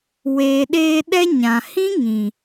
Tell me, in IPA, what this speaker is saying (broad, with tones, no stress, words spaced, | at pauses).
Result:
weː˨ɗeː˧ ɗɛ˦ɲã˨ hĩ˦ŋĩ˨